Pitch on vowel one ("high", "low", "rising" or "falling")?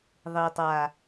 low